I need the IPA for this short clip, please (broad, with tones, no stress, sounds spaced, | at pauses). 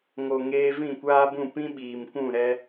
ŋ o˨ ŋ eː˧ v ĩ˦˨ kʷ aː˦ b ũ˦˨ p ĩ˦ ɓ iː˨ m kʷ ũ˦˨ ɾ ɛ˦